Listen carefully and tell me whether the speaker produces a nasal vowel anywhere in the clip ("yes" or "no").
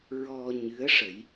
no